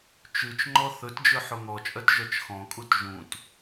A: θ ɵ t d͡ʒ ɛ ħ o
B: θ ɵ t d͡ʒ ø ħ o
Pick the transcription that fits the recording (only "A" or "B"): B